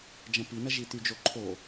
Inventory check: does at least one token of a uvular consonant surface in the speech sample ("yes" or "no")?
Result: no